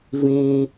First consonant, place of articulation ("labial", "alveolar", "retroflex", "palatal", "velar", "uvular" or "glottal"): labial